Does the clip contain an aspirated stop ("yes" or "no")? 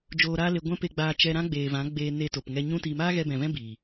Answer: no